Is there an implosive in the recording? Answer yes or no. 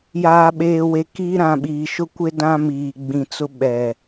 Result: yes